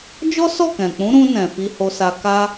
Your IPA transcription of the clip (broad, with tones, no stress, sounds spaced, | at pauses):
d͡ʒ ɔ˦ s ɔ˦˨ k ɛ̃˨ k͡p ũ˨˦ ɾ ũ˧ n ɛ̃˨ f i˧ h o˧ s a˧ k a˦